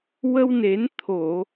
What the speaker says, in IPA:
w ə˧ w n e˨˩˦ n t̪ʰ o˨˩˨

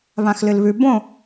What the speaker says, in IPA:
β ã x l ɨ l β ʉ b õ

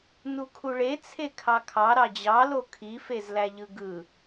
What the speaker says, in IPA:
n u kʰ u ɭ e t͡sʰ e kʰ ɑ kʰ ɑ ɾ ɑ d͡ʑ ɑ l o kʰ i f e z l æ ʎ ɯ ɡ ɯ

